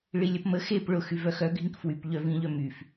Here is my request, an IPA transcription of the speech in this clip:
ɭ i lʲ ɐ p m ə x e p ɭ ʊ x y v œ x œ ɡʱ ĩ k f w y p ʎ œ v ĩ ʎ œ m y f

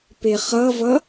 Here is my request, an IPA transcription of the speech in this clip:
p e χ ʌ v ʌ

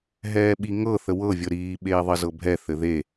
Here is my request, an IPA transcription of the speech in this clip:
ɦ ɛː ɓ i ŋ ɤ θ ə w ɤ vʲ ɤ ɾ iː ɓ eː ðˤ ɘ z ɤ bʱ ɛ θ ɘ ð e

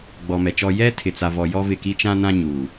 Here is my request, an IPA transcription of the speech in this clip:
ɡ͡b ɔ˨ m ɛ˨ t͡ʃ ɔ˦ j ɛ˦ tʰ ɪ˨ t͡s a˨ v ɔ˨ j ɔ˦ v ɪ˦˨ k i˦ t͡ʃ ã˦ n ã˦ ɲ uː˨

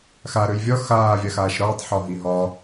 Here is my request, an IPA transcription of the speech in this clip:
x a ɾ ø j vʲ ɒ x aː vʲ a x aː ʃ ɾ ɒː tˤ ħ ɒ ɦ i ɦ ɒ

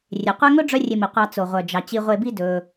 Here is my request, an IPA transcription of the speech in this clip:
rʲ e˩ qʷ ɛ˦ ŋ ɵ˥ ɖ͡ʐ œ˦ rʲ e˨ m i˩ qʷ ɑ˨ t͡s o˩ ʁʷ œ˩ d͡ʒ ɑ˩ t͡ɕ i˨ ʁʷ e˨ b i˦ d ɵ˨

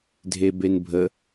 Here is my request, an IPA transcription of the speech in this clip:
dʱ e b e n bʱ ə

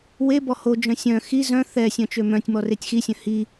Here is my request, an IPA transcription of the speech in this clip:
w e b ɔ h o d͡ʒ œ̃ sʲ œ̃ x i z œ̃ θ ɛ sʲ œ̃ t͡ʃ ø m œ̃ tʲ m ɔ r e tʲ x i sʲ œ̃ h i

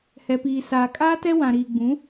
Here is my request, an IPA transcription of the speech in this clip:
h ɛ˨ p iː˨ s aː˨ kʼ aː˦ t ɛ˦ w ã˨ ɾ iː˨ ɡ͡b ũ˨˦

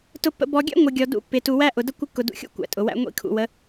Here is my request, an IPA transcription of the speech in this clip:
t ʊ˨ pː ə̰˨ b ɔ˨ ɡʲ æ̰˦ ŋʷ ə˨ ɡʲ ɔ˨ d ṵ˦ pː ɪ˨ t u˨ w æ˦ ʔ ʊ˨ d ə˦ kʷ ɪ˦ kː ʊ˨ d ṵ˨ xʲ ṵ˦ kʷ æ̰˨ tʼ ʊ˨ w æ̰˦ ŋʷ ḭ˦ kʰ ṵ˨ w ə˨˦

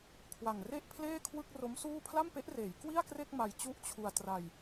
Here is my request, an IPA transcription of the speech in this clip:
kʰ w a˨˩ ŋ r e˥˩ ʔ pʰ l eː˥˩ kʰ w ɯ˥˩ k̚ r o˦˥ m s uː˥˩ pʰ l a˥˩ m p e˦˥ ʔ r eː˩˦ j k w i˥˩ a̯ k r e˥˩ k̚ m a˧ j t͡ɕ u˥˩ ʔ t͡ɕʰ u˧ a̯ t r a˧ j

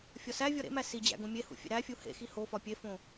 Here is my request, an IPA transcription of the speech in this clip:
fʲ ɒ s æ vʲ ɒ ɾ ḛ m æ s i d͡ʑ æ̰ ɡ õ mʲ e h ṵ fʲ ḛ ɾ æ fʲ u h ḛ x i h o f ɒ pʲ e f õ

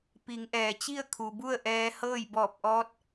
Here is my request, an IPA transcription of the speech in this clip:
p i˩˧ ŋ ʔ ɛː˩ t͡ɕ i˥˨ ə̯ kʰ u˩ b u˥˨ ə̯ ʔ ɛː˧ h ɤː˥˨ j b ɔː˧˩ p̚ ʔ ɔː˧˥ t̚

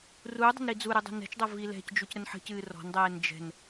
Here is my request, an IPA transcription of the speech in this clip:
r uː dˤ ə̤ n ɾ i d͡z u ɾ ɨ dˤ ə̤ n ɛ̤ t͡ʃ dˤ ɤ v i l ɛ̤ c d͡ʒ u c ɾ ə n ħ ə̤ c ɨː r ɔ̤ n dˤ ɛː n d͡ʒ ɛ̤ n

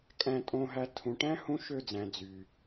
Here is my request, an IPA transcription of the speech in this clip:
kʼ æ̃˧ tʼ õ˧ ɦ æ˧ tʰ ũ˨ ʈ æ̃˦ h ũ˦ ʃ ø˦˨ d͡z æ̃˨ d͡z y˨

